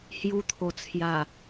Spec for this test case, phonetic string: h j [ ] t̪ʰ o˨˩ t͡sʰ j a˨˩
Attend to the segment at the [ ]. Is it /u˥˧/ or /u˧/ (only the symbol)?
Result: u˧